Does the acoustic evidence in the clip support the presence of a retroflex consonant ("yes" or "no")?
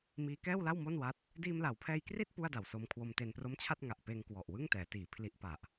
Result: no